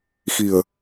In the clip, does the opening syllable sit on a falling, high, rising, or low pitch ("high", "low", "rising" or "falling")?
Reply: low